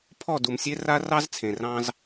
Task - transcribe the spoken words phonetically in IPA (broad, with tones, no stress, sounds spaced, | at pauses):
pʰ ɔ˦˨ d u˨ m sʲ e˦ r a˦ r ɑ˦ z t͡sʰ ẽ˨ r ɑ̃˦ z